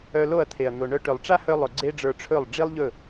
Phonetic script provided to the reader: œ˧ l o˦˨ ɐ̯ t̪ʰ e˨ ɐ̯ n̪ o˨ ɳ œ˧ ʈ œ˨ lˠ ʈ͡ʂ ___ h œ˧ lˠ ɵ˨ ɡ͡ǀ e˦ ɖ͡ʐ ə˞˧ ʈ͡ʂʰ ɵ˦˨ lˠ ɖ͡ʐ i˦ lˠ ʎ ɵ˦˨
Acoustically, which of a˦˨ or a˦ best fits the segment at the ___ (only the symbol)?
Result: a˦